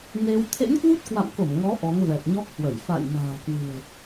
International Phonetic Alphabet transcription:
n e˧ w t̪ʰ ḛ˧˥ n k w u˦˥ t̚ k w a̰˧˨ m k o˧˩ m ŋ ɔ˨˦ ʔ ɔ˨˦ ŋ v ɛ˨˩ t̚ ɲ ɔ˦˥ k̚ h w ə˧˩ j f a̰˧˨ j n a̤ː˨˩ k w ɨ̤˨˩ ə̯

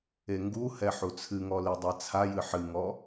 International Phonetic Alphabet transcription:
e ŋ ɡ u h ɛ ħ u t͡sʰ ɨ ŋ ɔ l i dˤ ɛ t͡sʰ a j ɨ ħ ɨ ŋ ɔ

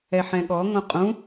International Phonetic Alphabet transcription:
ɛ ħ ɛ̃ ɠ ɔ ŋ õ qʼ ũ

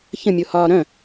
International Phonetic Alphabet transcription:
ç ə̃ mʲ o h ɒː ɾ œ̃

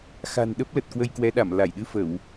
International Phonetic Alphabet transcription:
x a̤˨˩ n ɗ ə˦˥ p̚ l ə˨˩ t̚ k w ə˧ j k w ɛ˨˦ ɗ a˧˩ m l a˧˩ j ɗ ɨ˧ f ə˧˩˨ w

